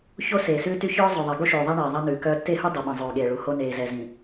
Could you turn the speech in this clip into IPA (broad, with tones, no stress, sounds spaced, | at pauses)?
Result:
ç o˦ s eː˨ s ʉː˦ t y˦ ç œː˦ zˤ ɵ˨ ðˤ e˨ ɡ o˦ ʃ ʉː˨ ðˤ æ˦ ɳ eː˨ ðˤ ɛ˦ n ʉː˨ k œː˦ tː e˦˨ h u˦ dˤ u˨ ɓ ĩ˨ zˤ ʉː˨ ɠ eː˨ ɭ u˨˦ h o˦ n eː˨ z ɛ˨ z ĩ˨